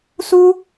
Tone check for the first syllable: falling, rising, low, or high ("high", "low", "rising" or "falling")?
high